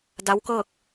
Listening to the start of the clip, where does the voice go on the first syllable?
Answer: rising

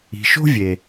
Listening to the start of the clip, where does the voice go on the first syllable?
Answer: low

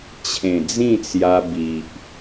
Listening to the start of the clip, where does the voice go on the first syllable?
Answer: low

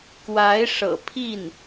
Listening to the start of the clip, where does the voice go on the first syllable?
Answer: rising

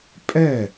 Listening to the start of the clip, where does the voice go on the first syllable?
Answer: falling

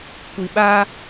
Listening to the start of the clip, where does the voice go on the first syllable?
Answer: low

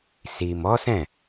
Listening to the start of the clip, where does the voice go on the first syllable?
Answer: low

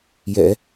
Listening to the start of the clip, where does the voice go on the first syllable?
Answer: low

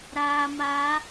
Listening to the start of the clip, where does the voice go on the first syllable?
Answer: low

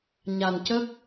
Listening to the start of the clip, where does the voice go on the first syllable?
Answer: low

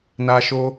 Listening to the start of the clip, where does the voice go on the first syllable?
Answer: high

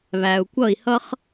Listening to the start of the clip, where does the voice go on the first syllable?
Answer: low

